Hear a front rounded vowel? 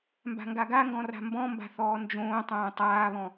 no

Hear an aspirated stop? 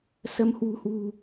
no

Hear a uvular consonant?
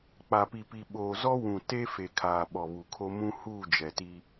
no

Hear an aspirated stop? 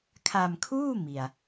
yes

